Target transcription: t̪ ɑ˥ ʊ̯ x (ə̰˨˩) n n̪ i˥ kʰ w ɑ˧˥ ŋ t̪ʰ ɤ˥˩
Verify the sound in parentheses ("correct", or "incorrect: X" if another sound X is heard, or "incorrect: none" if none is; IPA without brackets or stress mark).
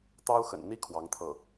correct